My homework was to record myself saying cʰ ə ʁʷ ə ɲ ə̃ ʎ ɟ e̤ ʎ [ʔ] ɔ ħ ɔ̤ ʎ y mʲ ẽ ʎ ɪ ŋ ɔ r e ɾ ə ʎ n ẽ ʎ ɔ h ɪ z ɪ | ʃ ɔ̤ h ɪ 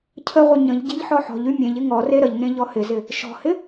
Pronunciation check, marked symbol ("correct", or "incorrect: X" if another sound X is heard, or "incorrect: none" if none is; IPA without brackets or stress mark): incorrect: ħ